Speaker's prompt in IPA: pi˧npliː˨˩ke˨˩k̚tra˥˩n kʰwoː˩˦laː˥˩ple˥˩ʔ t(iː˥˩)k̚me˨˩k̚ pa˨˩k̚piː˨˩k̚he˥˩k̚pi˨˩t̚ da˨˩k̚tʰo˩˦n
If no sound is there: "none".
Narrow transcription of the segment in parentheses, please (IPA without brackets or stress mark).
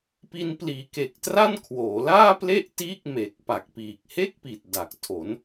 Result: iː˥˩